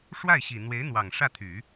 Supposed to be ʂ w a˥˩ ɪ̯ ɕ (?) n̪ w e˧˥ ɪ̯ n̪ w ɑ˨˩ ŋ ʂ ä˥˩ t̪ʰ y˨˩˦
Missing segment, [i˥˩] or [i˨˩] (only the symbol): i˨˩